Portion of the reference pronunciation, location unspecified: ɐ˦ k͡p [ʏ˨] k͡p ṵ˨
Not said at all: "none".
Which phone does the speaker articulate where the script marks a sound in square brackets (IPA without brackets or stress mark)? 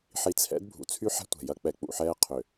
ɛ˨